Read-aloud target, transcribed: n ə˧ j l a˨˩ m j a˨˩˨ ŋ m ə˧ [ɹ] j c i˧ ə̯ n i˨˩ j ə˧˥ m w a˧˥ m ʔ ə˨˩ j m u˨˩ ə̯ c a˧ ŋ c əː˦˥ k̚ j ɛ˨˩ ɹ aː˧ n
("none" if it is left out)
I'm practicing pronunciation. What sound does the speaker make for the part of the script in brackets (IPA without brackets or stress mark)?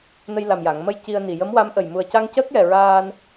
none